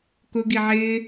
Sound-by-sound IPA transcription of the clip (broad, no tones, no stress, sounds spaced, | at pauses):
k ʊ ɡ i ʕ ɪː